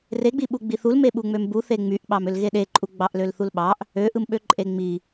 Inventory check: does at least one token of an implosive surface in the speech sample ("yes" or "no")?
yes